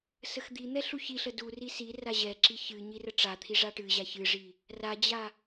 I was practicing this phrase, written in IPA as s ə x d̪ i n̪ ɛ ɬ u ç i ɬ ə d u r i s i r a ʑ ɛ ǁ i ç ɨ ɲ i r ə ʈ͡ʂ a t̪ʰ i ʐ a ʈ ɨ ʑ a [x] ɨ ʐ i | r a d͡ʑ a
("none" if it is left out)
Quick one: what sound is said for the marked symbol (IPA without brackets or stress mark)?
ç